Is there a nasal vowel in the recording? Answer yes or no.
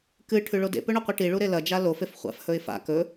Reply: no